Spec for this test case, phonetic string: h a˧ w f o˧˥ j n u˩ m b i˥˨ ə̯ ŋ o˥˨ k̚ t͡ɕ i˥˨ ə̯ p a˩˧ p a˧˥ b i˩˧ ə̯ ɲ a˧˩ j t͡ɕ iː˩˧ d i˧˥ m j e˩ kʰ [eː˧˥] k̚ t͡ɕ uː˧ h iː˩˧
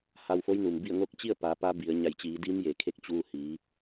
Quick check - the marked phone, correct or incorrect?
incorrect